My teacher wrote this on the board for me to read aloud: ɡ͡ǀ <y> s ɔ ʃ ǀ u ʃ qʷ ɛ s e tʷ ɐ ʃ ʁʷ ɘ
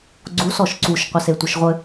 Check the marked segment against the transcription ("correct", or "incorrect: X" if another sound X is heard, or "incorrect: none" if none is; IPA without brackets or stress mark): incorrect: u